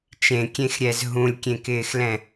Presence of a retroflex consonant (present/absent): absent